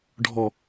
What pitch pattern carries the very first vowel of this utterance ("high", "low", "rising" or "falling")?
low